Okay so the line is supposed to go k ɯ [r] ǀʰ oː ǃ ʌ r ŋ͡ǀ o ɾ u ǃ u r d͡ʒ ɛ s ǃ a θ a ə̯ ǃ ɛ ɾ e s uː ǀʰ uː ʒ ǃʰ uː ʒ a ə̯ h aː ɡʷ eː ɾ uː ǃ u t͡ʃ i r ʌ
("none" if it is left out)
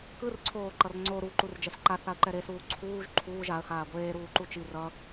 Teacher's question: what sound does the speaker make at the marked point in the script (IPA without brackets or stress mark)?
r